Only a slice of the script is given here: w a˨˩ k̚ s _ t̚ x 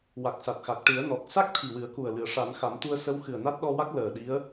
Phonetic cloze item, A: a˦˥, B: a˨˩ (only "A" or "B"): B